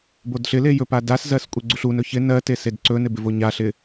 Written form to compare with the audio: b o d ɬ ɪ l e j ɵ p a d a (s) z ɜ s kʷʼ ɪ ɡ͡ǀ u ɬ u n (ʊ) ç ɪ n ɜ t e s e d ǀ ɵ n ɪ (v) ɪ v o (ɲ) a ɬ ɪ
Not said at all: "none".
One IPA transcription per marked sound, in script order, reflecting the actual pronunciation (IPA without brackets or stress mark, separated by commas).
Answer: s, ɵ, b, ɲ